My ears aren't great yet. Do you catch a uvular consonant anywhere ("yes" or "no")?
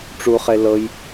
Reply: yes